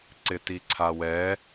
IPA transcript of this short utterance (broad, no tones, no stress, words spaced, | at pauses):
ǀɪtiǀʰawɛ